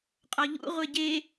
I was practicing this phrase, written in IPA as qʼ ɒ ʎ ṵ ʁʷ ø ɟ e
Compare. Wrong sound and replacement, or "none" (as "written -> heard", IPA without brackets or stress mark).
ø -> e